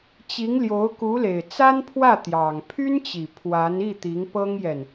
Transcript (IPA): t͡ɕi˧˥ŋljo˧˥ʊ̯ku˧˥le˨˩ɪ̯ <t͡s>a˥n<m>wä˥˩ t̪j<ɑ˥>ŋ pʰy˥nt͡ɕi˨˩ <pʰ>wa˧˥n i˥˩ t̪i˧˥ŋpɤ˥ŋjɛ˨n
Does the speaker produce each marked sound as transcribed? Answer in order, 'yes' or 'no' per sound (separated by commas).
yes, no, no, yes